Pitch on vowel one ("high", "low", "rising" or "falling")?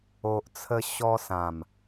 low